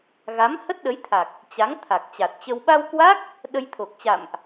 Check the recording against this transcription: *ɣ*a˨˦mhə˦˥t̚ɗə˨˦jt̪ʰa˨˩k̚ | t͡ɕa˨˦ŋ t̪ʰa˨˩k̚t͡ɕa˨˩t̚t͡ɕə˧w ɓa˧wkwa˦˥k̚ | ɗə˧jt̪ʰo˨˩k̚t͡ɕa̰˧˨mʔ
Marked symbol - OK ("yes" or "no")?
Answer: yes